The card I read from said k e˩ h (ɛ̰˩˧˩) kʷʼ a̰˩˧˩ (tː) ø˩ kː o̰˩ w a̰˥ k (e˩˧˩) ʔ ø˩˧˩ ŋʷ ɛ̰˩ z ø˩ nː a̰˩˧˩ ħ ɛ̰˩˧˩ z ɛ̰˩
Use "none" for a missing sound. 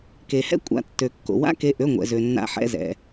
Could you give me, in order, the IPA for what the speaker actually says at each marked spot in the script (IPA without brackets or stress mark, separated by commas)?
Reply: ɛ̰˥, tː, e˩˧˩